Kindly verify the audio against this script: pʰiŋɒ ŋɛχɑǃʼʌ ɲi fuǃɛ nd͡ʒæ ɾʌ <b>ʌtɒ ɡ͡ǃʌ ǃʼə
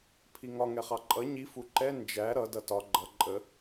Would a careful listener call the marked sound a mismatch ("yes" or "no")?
yes